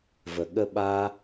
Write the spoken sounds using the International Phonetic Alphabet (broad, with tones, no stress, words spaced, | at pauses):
və˨ɠə˦ɓa˦